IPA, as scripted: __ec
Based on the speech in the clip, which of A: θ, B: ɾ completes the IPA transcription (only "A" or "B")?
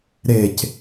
B